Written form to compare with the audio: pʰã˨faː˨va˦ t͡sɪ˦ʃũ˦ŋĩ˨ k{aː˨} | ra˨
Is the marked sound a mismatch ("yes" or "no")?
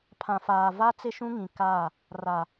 yes